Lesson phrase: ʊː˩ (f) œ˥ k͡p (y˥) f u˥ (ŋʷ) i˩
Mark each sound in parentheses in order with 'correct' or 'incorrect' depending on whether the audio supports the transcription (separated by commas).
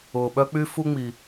incorrect, correct, incorrect